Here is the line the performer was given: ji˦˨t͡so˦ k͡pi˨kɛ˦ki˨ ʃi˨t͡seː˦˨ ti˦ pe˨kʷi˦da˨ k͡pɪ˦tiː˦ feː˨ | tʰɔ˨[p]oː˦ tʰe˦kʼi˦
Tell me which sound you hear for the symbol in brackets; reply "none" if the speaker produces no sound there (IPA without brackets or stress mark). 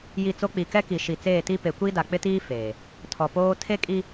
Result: p